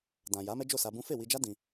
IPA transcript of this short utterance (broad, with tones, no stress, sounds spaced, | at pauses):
d ã˨ j a˨˦ m ɛ˦ d͡ʒ o˦˨ s a˧ b ũ˦ f e˦˨ w i˧ d͡ʒ a˦ d ĩ˧